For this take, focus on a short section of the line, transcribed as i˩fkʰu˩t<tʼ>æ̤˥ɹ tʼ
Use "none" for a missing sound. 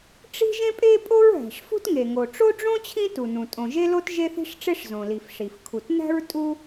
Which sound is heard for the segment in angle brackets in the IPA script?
n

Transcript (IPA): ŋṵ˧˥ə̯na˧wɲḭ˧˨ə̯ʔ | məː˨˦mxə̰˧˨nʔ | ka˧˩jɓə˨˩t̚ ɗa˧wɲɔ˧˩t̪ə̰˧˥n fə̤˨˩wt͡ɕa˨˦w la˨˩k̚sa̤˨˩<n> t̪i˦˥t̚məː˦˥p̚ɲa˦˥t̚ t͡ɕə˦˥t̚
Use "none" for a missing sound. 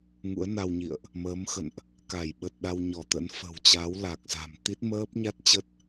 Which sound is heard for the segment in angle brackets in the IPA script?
m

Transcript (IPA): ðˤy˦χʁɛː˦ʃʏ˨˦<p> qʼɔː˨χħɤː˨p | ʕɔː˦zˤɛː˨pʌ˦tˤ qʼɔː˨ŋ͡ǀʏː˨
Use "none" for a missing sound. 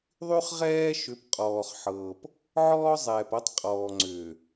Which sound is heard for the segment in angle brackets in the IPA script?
p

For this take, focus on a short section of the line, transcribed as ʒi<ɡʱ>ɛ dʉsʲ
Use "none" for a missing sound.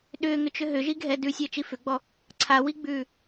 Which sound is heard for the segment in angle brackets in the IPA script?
ɡʱ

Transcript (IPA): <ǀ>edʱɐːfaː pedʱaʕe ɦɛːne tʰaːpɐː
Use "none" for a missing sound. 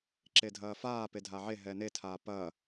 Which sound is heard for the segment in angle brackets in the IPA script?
ǁ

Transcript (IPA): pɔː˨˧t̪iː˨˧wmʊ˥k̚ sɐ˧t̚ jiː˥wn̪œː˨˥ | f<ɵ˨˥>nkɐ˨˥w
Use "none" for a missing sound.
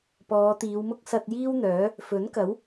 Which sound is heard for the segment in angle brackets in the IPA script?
ɵ˨˥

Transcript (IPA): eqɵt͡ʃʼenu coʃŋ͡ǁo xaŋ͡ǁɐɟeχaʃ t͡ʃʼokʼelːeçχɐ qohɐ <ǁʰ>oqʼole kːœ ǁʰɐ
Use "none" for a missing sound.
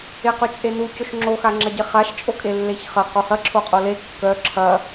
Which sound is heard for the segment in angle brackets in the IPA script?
ǁʰ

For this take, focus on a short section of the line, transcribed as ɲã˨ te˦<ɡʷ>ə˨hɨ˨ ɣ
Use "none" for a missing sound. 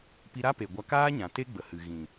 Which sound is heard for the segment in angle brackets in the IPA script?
ɡ͡b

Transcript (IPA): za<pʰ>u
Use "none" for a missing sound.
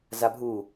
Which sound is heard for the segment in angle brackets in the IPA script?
bʱ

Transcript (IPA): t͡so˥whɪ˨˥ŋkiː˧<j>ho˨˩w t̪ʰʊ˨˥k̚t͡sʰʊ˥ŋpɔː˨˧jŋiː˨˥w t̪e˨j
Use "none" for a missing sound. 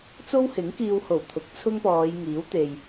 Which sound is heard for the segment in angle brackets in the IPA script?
w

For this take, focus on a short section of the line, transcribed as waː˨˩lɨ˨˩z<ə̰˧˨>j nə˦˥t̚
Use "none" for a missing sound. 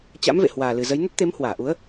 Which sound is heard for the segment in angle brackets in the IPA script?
ə˨˦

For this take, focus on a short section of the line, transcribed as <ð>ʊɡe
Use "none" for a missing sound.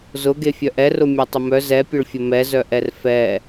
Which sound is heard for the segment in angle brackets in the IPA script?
z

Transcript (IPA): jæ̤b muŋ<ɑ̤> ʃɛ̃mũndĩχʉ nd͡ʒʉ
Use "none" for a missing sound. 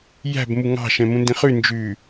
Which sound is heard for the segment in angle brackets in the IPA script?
ɑ̤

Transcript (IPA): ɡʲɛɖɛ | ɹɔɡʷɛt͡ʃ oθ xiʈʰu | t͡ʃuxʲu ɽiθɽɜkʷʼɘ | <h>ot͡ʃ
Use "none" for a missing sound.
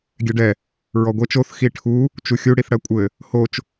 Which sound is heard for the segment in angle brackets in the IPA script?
h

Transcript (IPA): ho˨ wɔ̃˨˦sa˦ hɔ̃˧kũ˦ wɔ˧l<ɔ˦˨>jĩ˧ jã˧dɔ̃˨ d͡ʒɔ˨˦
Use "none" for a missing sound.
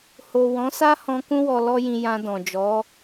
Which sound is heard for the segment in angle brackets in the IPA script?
ɔ˦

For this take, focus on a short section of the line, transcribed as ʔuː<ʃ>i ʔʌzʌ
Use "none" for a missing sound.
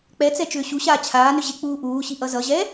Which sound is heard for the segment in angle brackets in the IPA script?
ɕ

